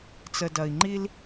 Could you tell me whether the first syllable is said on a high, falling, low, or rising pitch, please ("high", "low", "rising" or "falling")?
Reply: low